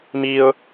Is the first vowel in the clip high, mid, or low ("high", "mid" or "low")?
high